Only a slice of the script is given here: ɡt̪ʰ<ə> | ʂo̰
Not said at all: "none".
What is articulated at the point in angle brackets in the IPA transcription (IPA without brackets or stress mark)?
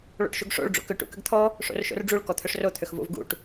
ɔ